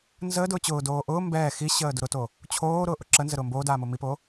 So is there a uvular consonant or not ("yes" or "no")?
no